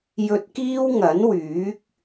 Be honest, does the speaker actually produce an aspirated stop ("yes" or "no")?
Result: no